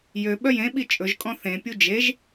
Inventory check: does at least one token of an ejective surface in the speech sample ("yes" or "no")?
yes